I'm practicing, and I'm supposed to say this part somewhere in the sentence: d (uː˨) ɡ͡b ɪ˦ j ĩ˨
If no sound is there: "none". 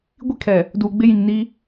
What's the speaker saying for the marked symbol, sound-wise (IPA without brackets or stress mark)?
uː˨